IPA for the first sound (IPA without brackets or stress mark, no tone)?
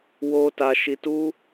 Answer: w